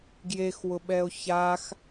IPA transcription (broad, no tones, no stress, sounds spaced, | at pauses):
ɡ j e x w ʊ ɓ ɛ o̯ ç a x